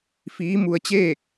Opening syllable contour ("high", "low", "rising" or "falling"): rising